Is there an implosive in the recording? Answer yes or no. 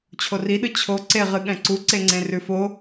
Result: yes